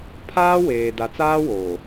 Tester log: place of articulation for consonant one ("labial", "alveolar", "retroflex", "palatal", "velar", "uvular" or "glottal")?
labial